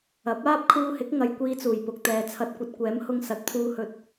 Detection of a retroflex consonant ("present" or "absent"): absent